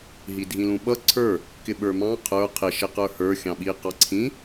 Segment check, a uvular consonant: present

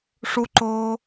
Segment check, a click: present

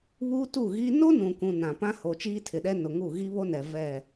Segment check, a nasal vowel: present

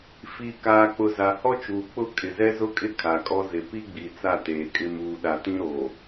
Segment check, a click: absent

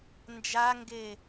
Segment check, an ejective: absent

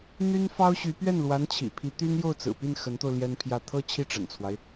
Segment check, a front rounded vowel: present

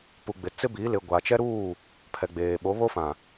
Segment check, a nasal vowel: present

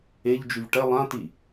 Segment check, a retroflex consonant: present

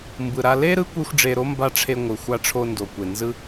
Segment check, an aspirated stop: present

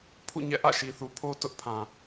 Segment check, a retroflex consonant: absent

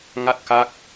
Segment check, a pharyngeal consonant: absent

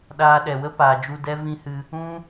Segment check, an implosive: present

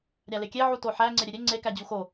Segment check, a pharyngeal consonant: present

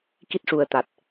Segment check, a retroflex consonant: present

